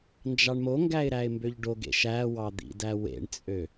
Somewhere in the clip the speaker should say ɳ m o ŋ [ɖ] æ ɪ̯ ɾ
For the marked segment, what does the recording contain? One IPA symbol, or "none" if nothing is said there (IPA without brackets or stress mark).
ɡ